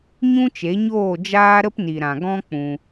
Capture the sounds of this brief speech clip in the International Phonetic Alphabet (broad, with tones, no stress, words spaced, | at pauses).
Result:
ɲũ˦t͡ʃe˨˦ɲoː˦˨ d͡ʒaː˦ɾə˦pni˨ɾã˨ ɡɔ̃˦k͡pũ˧